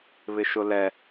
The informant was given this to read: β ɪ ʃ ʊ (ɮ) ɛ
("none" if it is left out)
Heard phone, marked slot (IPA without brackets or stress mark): l